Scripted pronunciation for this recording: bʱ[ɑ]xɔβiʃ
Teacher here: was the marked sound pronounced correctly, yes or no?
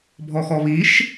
no